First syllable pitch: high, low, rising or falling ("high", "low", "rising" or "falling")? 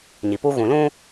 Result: low